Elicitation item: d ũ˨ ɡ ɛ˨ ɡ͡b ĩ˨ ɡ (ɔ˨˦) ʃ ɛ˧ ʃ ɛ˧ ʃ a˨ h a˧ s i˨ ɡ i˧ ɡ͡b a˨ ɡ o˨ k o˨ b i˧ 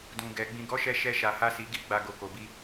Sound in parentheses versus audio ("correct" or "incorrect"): correct